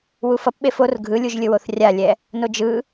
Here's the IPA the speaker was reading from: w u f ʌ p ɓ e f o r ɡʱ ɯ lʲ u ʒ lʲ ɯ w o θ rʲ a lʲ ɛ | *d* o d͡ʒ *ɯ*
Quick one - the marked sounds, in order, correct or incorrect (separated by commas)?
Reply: incorrect, correct